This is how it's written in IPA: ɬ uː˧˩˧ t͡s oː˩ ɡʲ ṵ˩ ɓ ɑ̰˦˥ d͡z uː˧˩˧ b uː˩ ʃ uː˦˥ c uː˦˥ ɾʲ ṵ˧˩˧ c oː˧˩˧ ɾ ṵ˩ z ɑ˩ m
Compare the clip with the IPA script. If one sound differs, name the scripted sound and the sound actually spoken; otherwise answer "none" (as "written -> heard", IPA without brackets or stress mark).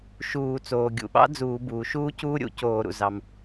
ɬ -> ʃ